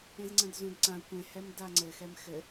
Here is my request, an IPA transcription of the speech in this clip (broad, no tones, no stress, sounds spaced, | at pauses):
ẽ z ŋ͡ǀ ɐ̃ d z ũ d ǀ ã kʷ ẽ h ɛ m d a ŋ͡ǀ ɘ x ɛ m x ɘ